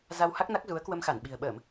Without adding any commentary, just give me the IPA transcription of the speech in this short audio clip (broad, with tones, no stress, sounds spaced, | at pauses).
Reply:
z a˧ w h a˦˥ k̚ n a˦˥ k̚ z u˨˦ ə̯ k w ə˧ m x a˧˩ n ɓ i̤˨˩ ə̯ ɓ əː˧˩˨ m